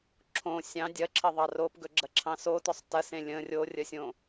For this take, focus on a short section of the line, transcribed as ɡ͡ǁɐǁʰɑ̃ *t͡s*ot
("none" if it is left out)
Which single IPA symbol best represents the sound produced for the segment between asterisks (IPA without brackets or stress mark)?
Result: s